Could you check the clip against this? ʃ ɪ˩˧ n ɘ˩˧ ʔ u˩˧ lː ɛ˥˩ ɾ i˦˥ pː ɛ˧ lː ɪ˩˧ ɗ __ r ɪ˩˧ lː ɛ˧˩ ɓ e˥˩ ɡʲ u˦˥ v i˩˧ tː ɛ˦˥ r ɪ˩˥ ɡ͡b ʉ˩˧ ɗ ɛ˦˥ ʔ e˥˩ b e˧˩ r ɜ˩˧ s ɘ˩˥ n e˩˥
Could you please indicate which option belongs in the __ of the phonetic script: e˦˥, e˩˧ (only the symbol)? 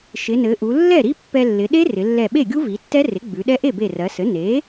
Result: e˦˥